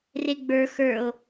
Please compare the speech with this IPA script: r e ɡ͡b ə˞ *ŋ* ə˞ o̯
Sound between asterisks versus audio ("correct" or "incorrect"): incorrect